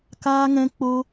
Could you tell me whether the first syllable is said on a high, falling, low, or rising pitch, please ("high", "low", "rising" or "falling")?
high